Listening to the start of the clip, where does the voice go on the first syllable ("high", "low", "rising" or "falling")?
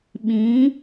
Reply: rising